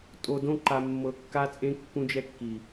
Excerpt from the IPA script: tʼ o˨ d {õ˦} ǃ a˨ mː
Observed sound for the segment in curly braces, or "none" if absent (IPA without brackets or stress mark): õ˦